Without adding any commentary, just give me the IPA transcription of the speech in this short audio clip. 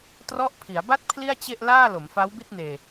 t r ɔ˦˥ ʔ pʰ i˩˦ a̯ b a˥˩ t̚ pʰ l i˥˩ a̯ t͡ɕ e˥˩ ʔ l aː˥˩ l o˩˦ m f a˦˥ w b i˥˩ t̚ n eː˧

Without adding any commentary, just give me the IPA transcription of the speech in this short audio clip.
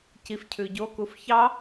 c i f cʰ ʉ ɟ o k u f ç ɑ

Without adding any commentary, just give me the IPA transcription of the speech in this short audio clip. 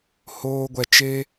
h oː˦ ɡʷ ɛ˧ t͡ʃ e˦

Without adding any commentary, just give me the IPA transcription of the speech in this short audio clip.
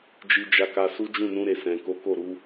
d͡ʒ i˦ d͡ʒ a˦ k a˦ s u˦ d͡ʒ ũ˦˨ n ũ˧ ɾ e˨ s ɛ̃˨ k o˨˦ k o˦˨ ɾ u˨˦

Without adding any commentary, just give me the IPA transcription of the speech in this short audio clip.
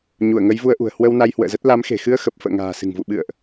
ɲ u˧˩ ə̯ ŋ ə˨˦ j v u˧ ə̯ ʔ ṳ˨˩ ə̯ h w ə˧ w n a˧ j h w ə̰ː˧˨ z ə˦˥ t̚ l a˨˦ m x e̤˨˩ x ɨ˧ ə̯ x ə˨˩ p̚ f ə̰ː˧˨ ŋ a̤ː˨˩ s ɨ̤˨˩ ŋ v ṵ˧˨ ɓ ɨ̰˧˨ ə̯ ʔ

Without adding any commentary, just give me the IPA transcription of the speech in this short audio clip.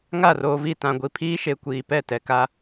ŋ a˦˨ r oː˨ v i˦˨ t ã˨ ɡʷ i˨ pʰ iː˦ ʃ e˨ kʷ iː˨ p ɛ˦˨ t ɛ˨ k a˦

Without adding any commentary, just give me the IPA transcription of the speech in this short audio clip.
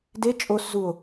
d e t͡ʃʼ o s z u o̯

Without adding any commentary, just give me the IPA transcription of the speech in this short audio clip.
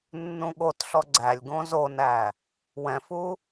nː ũ ɠ o t ɬ ɔ ɡ͡ǀ æ lʲ ɡ õ z o n æ | w ɛ̃ f u

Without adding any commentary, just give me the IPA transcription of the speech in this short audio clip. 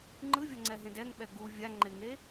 ŋ͡ǃ ɯ vʲ ʌ ŋ͡ǀ ɛ ɦ ẽ d ɛ ŋ ɓ ɛ ɡ u vʲ a ŋ͡ǃ e ŋ e

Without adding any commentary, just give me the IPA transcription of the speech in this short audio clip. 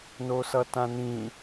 n o s ʌ t ã n ĩ

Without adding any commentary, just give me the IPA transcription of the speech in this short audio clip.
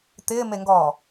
t̪ ɪː m e ŋ ɡ ɔː

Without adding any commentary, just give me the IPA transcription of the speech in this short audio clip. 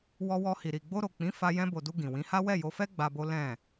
w ɔ˧ w ɔ˧ h i˨ ɾ i˨ ɡ͡b o˧ ɾ o˨ k͡p ĩ˨˦ f a˧ j ɛ̃˧ b o˨ d u˧ ɡ ĩ˨ w ĩ˨˦ h a˦ w ɛ˦˨ j o˧ f ɛ˦ ɡ͡b a˧ b o˦ l ɛ̃˦˨

